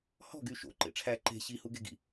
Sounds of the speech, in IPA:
h ɔ̤ ɡ y ʃ o̰ ǃ ḛ ʈ͡ʂʰ æ ǃ e̤ ɕ i h u ɡ e ɡ ḭ

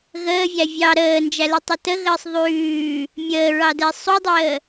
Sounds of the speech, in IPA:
ɣ əː vʲ æ vʲ ɑ ɾ əː n d͡ʒ æ l i tˤ ɛ t ə ɣ əː sˤ ðˤ ʉː | mʲ əː ɹ ɑ d ɛ sˤ u dˤ əː

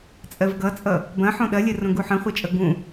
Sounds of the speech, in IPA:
t͡sʼ ɜ v ɡ ʌ t͡sʼ ʌ | b ɐ̃ ħ õ ɗ ɐ lʲ ɜ r õ ɡ u ħ ə̃ χʷ ɐ t͡ʃʼ ʌ ɡ ũ

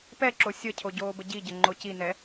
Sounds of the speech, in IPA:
p ɛ ǁ o sʲ ə cʰ o ɟ oː b ə ɟ i ɟ ə ŋ͡ǃ o c i n ɛ

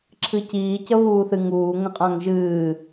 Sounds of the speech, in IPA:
ǁʰ ɨ c iː c ə β uː θ ɨ ŋ uː ŋ ə̃ qʼ ã ŋ ʒ ɨː

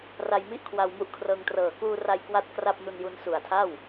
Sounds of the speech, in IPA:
r a˧ j m i˥˩ ʔ kʰ w a˧ w m u˦˥ ʔ kʰ r ɤː˧ ŋ t r ɤː˨˩ k uː˧ r a˧ j k w a˥˩ t̚ k r a˥˩ p̚ n u˧ n j u˧ n s u˨˩ a̯ tʰ a˥˩ w

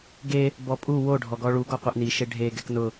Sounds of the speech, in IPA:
ɡ e | b ɔ pʼ u w o ɖʱ ɔ ɡ ɔ ɭ u ɡ ɔ qʷ e ʔ n i ʃ e ɖʱ e ɡ ɛ k n ʊ

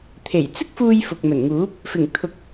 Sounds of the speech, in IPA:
t̪ʰ e˨˩ j t͡s ɪ˥ k̚ f uː˧ j f ʊ˨ k̚ m ɵ˨˩ n ŋ uː˨˥ p̚ | f ɪ˨˩ ŋ t̪ʰ ʊ˨˥ k̚

